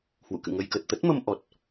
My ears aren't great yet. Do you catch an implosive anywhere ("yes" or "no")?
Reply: no